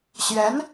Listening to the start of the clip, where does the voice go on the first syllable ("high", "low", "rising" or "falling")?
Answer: rising